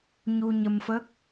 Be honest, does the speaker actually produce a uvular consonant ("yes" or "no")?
no